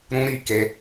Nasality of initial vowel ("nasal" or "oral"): nasal